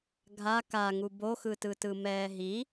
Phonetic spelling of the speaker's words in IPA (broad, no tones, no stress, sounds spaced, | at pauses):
ɡʱ a k a ŋ u b o x ɯ t ɯ t ɯ m ɛː ɦ i